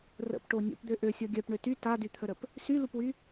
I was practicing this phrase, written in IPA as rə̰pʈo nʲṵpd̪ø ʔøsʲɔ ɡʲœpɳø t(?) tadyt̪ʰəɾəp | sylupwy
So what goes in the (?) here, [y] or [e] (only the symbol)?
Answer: y